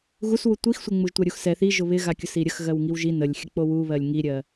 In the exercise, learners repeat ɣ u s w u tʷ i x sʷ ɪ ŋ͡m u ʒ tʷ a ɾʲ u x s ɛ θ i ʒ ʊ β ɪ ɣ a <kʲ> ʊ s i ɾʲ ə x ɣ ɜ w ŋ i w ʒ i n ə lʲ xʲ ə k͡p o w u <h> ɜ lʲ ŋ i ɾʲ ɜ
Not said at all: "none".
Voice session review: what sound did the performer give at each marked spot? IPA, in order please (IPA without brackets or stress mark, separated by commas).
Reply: kʲ, β